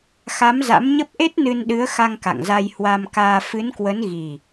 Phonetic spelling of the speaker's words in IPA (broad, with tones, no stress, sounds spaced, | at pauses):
x a˨˦ m z a̰˧˥ m ɲ ə˦˥ p̚ ʔ e˦˥ t̚ n ɨ˧ n ɗ ɨ˨˦ ə̯ x a˧ ŋ k a̰˧˨ ŋ z a˧ j h w a˧ m k aː˧ f ɨ˨˦ n k w ə˨˦ n ɣ i˨˩